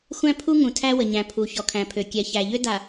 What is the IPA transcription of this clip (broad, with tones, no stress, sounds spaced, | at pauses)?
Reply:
xʷ æ̃˦ pʰ u˦ ŋ ũ˨ tʰ æ˦ w ə˨ ɲ æ̃˨ pʰ u˨ ç ɔ˨ kʰ æ̃˨ pʰ ø˨ kʲ ɛ˨ ç æ˨ ʎ ø˦ d a˨